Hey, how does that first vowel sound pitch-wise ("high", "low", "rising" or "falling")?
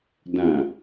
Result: low